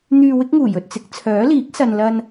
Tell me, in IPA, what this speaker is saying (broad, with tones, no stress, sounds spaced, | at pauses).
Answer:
n̪ yː˧ w ɪ˥ k̚ ŋ uː˨˩ j ɵ˨ t̚ t͡s ɪ˨˥ k̚ t͡sʰ œː˨˥ l iː˨˥ k̚ s ɐ˨ n l ɐ˧ n